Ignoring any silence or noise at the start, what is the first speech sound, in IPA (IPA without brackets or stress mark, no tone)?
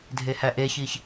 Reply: dʱ